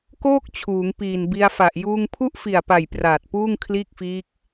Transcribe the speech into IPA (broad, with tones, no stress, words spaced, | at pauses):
koː˥˩k̚ t͡ɕʰuː˩˦ŋpiː˨˩nbi˧a̯fa˨˩ʔ juː˧ŋpʰu˥˩ʔfi˨˩a̯pa˨˩j praː˨˩t̚puː˥˩ŋ kʰliː˥˩k̚fiː˦˥k̚